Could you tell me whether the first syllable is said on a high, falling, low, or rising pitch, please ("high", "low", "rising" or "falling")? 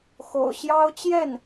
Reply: low